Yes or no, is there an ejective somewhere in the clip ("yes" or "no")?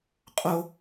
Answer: yes